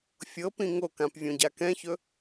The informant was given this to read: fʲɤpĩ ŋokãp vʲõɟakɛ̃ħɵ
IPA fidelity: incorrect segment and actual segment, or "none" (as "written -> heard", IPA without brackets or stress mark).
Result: ħ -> ç